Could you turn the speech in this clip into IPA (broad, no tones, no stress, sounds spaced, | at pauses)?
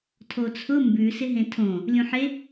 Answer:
tʰ o t͡sʰ ʊ m b ʉ s ɪ ɦ ẽ tʰ õ | lʲ ũ ħ e